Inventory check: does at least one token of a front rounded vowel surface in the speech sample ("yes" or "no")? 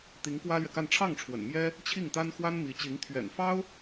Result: no